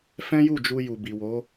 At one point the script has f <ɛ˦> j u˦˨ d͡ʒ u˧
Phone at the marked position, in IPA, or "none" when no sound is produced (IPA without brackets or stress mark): ɛ̃˦